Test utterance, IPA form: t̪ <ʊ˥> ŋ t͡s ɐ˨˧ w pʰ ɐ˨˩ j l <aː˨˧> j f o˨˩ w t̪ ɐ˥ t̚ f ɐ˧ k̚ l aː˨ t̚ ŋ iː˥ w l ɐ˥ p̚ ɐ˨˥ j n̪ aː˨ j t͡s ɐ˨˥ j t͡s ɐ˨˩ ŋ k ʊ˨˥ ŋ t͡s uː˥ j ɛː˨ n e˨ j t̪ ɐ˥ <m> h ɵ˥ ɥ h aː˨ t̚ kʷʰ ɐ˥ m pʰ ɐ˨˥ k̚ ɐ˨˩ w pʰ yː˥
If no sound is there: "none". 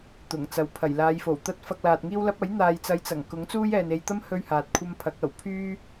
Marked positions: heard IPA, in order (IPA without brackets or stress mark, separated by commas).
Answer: ʊ˨˩, aː˨˧, m